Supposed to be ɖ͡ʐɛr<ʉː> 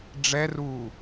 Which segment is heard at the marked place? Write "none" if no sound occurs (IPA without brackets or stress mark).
uː